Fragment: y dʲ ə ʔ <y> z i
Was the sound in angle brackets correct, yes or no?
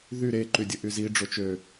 yes